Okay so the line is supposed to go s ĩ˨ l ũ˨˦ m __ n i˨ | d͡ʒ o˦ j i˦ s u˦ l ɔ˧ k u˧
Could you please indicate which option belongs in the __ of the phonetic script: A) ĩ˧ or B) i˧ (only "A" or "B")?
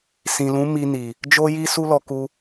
B